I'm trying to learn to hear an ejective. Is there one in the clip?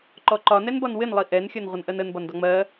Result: no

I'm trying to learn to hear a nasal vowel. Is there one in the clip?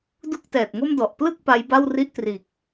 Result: no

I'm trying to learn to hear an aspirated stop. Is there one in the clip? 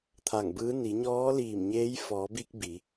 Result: yes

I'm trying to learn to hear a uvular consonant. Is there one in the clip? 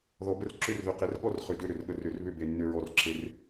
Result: yes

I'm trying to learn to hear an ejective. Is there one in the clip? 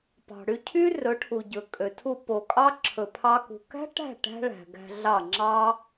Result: yes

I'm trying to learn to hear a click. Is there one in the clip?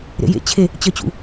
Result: no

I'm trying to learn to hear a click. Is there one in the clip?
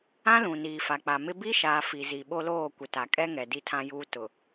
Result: no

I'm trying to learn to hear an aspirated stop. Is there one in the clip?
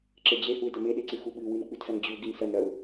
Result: no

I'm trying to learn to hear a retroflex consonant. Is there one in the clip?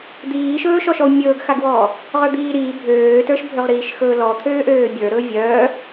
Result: no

